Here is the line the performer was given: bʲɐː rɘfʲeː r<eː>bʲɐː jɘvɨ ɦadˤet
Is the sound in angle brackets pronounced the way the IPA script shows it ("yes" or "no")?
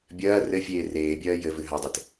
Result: yes